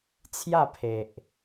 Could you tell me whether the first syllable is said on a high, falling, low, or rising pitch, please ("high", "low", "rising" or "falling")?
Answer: falling